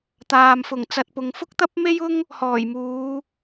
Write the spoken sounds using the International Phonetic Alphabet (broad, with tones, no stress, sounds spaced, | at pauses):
t̪ aː˨ m f ʊ˨˩ ŋ t͡s ɐ˨ t̚ p ʊ˨˧ ŋ f ʊ˥ k̚ t̪ ɐ˥ p̚ m e˥ j ʊ˥ ŋ | h ɔː˨˩ j m uː˨˧